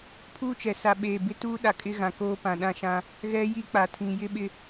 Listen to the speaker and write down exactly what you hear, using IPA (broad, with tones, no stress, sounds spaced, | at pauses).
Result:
pʰ uː˦ t͡ʃ ɛ˨ s a˨ ɓ eː˨ b ɪ˦ t uː˦ ɗ a˨ kʼ ɪ˦ ɣ ã˨ k oː˦ p ã˨ ɗ ã˦ ʃ ã˦ | ɣ ɛ˦ j i˦ k͡p a˨ tʰ ĩ˨ j ɪ˦ ɓ ɪ˦